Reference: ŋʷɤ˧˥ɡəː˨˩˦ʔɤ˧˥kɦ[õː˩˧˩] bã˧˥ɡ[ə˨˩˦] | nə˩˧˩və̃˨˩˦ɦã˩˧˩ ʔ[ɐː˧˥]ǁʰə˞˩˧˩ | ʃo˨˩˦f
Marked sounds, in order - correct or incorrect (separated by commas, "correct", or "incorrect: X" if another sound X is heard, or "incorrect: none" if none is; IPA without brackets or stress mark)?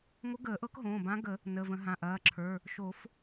correct, correct, incorrect: ɐː˩˧˩